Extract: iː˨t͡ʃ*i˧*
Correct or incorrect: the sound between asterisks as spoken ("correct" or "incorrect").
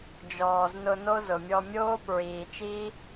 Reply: incorrect